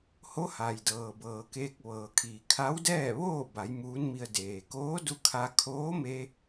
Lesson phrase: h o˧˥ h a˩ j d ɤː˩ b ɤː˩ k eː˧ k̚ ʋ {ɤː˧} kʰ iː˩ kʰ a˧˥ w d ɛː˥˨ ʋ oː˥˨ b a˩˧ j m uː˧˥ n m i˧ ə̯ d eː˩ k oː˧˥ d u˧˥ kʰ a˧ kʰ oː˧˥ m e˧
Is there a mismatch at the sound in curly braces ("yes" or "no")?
yes